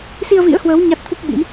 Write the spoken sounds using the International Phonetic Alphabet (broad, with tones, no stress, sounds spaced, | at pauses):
s i˧ ə̯ v ḭ˧˥ ə̯ h w əː˨˦ w ɲ a˦˥ t̚ t̪ʰ u˦˥ k̚ ɓ ḭ˧˥ m